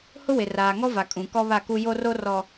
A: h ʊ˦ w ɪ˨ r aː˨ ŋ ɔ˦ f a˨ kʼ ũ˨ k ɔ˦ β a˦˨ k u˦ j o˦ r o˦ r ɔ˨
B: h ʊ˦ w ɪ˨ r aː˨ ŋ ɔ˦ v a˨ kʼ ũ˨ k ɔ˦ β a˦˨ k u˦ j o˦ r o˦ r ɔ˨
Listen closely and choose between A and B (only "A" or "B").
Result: B